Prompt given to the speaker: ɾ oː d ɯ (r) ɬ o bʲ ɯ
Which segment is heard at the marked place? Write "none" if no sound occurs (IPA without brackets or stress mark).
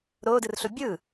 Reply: r